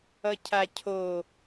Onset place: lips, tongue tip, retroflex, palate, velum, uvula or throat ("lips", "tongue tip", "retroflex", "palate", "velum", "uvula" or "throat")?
palate